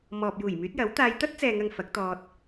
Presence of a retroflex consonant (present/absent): absent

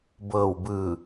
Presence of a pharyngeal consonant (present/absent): absent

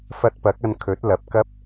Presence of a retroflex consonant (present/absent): absent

